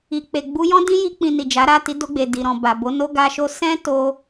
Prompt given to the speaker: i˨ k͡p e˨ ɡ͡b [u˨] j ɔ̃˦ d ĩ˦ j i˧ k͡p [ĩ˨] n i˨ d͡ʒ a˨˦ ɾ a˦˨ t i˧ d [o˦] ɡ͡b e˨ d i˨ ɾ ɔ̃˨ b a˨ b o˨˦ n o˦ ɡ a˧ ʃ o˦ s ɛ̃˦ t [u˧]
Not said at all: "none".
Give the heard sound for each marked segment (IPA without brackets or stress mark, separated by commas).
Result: u˧, ĩ˨, o˧, o˧